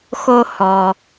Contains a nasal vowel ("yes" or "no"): no